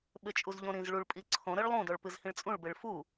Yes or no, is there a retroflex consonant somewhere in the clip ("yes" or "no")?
yes